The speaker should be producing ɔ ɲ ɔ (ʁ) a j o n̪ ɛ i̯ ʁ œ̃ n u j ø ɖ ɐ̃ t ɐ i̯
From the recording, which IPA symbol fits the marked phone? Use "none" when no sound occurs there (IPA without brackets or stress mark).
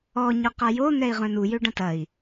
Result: q